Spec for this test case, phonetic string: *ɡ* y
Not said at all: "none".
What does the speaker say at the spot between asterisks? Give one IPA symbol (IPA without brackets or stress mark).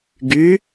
ɡ